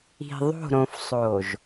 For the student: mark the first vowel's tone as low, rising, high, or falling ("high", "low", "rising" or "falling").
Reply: low